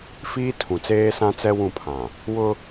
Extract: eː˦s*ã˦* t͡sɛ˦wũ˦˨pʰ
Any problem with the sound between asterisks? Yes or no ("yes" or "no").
no